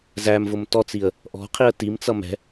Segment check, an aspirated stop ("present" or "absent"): present